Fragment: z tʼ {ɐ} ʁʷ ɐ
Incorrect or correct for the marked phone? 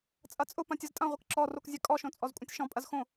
incorrect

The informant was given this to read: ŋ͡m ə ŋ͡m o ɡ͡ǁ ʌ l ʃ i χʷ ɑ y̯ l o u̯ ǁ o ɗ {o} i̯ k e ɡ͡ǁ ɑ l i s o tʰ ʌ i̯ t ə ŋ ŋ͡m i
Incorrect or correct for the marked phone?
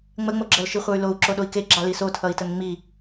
correct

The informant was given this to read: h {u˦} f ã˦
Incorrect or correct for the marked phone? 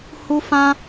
correct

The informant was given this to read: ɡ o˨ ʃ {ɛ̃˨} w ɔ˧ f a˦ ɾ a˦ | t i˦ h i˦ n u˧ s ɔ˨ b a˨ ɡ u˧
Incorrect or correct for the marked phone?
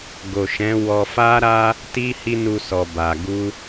incorrect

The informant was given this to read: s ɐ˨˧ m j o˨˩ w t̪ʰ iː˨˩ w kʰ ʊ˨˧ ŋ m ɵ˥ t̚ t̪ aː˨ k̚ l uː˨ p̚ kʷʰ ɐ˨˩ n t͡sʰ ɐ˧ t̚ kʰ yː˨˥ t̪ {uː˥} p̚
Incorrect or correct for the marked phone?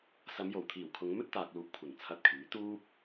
correct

